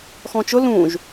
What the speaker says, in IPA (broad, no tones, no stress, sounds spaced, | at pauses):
x ɔ̃ t͡ʃ ʊ l ũ ʒ